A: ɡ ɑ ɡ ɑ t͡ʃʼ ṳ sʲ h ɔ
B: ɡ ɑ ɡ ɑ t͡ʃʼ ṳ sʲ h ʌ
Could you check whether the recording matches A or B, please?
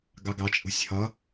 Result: B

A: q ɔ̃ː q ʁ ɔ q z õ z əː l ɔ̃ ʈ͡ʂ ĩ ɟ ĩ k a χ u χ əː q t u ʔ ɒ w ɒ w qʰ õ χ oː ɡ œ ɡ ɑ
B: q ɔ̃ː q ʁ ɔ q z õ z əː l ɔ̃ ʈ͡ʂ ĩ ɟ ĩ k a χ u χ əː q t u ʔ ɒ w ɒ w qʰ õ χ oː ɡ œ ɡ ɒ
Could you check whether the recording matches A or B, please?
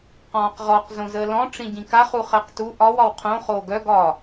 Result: B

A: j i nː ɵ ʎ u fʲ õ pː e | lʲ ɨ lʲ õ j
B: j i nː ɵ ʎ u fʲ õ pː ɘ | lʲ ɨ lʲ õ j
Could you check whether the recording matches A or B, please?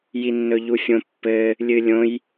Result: B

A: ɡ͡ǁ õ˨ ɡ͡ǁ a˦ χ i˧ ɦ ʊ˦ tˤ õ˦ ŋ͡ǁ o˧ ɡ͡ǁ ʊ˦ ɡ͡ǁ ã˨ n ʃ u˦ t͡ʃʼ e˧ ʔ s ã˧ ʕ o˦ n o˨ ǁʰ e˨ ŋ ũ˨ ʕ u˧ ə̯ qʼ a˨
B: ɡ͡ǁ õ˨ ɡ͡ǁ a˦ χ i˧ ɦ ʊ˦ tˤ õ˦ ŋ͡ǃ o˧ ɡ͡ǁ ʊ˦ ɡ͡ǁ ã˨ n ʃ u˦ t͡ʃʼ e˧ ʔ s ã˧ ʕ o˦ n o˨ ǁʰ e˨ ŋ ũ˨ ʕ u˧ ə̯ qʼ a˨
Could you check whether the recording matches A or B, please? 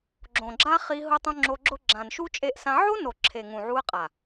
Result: A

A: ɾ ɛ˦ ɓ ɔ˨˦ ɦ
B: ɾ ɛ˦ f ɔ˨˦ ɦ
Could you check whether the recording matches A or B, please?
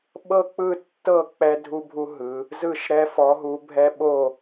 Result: B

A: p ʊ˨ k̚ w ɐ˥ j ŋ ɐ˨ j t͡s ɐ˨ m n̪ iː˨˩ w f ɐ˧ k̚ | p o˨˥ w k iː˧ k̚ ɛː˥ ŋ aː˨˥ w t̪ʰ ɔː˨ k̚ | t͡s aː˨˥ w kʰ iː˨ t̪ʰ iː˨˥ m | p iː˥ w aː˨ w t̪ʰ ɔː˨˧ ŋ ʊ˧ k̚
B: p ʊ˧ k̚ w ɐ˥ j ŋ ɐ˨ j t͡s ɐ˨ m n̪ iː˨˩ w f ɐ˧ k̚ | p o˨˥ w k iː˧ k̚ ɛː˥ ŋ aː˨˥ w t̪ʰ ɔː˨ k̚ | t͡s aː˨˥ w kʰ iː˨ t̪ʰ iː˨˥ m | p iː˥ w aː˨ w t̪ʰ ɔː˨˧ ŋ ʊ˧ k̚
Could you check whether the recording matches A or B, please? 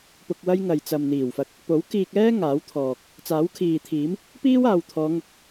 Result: B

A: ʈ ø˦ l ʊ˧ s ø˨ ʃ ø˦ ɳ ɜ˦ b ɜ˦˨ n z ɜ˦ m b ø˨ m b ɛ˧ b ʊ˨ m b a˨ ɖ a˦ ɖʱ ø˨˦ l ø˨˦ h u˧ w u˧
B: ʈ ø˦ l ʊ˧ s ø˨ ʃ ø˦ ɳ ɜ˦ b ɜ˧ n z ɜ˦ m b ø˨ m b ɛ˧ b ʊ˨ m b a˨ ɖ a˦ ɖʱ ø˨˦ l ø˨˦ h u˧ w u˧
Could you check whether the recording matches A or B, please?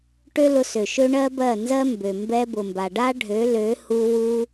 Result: A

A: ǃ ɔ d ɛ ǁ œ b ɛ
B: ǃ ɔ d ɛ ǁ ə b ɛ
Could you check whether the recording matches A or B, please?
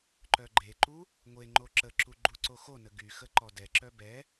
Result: A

